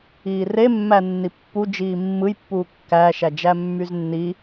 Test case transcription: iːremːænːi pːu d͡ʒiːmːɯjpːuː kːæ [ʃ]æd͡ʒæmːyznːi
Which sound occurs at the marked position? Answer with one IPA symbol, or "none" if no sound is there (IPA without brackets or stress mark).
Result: ʃ